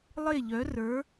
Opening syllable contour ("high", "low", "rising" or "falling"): falling